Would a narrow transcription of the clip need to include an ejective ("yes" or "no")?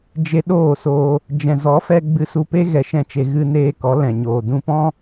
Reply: no